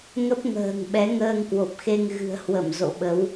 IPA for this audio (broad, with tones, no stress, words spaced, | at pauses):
ŋə˦˥p̚ŋə̤ː˨˩ŋɓɛ˨˦ ŋəː˧ŋkwo˨˩p̚xe˧ŋ ɣɨ̤˨˩ə̯hwə˧˩m zo̰˧˨ɓə˨˦w